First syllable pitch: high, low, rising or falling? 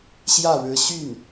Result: falling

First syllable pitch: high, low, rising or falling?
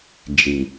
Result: low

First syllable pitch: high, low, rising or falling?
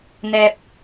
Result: low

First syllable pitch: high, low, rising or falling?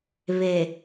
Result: low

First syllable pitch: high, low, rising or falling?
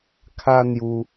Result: high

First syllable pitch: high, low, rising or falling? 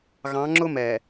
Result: rising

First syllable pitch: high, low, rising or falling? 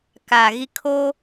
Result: low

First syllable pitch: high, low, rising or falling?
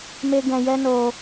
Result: high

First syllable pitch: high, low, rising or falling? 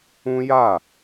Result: high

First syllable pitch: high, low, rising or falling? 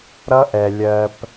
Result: high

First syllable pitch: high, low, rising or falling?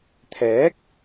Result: rising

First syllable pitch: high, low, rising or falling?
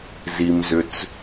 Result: low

